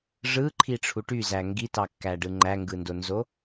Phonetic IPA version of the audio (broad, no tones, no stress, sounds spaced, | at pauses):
ʐ ɯ ǃʰ i ʈ͡ʂʰ u ʈ y z æ ŋ ɡ i t ɑ kː æ ɖ ɯ ŋ͡ǃ æ ŋ ɡ ɯ n d o n z o